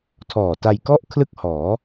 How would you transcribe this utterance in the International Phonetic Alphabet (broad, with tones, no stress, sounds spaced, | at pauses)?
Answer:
tʰ ɔː˨˩ t a˧ j k ɔ˥˩ ʔ kʰ l ɯ˥˩ k̚ h ɔː˩˦